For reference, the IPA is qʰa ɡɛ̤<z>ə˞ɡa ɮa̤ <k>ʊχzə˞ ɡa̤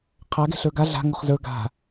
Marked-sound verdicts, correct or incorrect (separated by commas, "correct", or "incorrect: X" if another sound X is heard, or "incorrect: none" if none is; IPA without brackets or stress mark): incorrect: ɬ, incorrect: ŋ